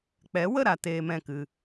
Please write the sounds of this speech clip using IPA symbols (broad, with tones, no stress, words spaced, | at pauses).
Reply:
k͡pɛ˨˦wə˦˨ɾa˨ teː˧mɛ̃˦˨kɨ˧